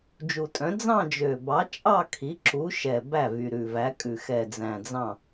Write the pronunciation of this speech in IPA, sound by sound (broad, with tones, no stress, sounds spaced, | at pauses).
d͡ʒ u˨˩ tʼ œ̃˨˥ d͡z ɑ̃˥˧ d͡ʒ ø˨˩ b ɑ˨˥ t͡ʃʼ ɑ˥˧ kʰ i˨˥ ǁ u˨˥ ʃ ɛ˨˩ b æ˥˩ v y˨˩ ɾ ʉ˨˩ v æ˨˥ kʼ ʉ˨˩ x ɛ˨˩ d͡z æ̃˨˩ d͡z ɑ̃˥˩